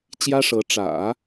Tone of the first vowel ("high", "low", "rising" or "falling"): high